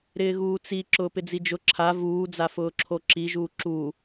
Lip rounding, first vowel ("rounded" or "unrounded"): unrounded